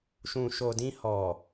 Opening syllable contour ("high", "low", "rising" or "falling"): low